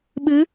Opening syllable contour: rising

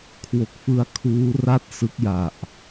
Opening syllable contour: low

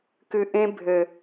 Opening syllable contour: low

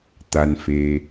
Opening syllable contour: low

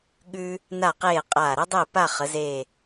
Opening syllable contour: high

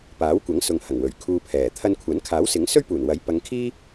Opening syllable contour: rising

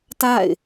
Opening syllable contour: falling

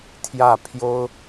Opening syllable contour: falling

